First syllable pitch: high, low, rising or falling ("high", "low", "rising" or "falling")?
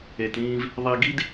low